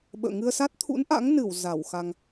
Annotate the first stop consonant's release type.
implosive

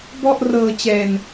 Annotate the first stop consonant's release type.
plain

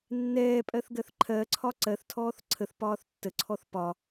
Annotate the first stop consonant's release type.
ejective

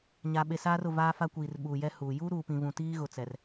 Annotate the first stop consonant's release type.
implosive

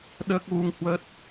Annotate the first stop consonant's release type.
implosive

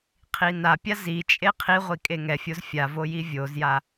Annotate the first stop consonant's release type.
aspirated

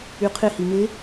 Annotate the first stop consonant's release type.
aspirated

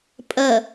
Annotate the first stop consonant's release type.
ejective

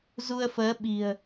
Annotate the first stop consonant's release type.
implosive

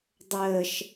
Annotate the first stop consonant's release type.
plain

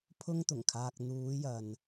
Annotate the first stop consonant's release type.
aspirated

